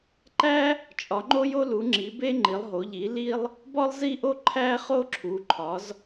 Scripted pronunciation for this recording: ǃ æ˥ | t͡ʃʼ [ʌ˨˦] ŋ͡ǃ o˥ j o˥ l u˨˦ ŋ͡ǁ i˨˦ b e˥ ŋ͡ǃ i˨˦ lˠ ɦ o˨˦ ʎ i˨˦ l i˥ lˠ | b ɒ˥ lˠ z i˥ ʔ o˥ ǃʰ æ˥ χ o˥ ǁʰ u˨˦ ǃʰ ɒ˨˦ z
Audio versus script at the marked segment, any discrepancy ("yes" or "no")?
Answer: yes